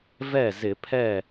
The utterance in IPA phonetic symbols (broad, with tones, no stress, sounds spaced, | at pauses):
v ɛ˥˩ z ɪ˧˩˧ pʰ ɛ˥˩